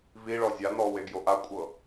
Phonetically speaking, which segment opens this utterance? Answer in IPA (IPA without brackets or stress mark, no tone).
v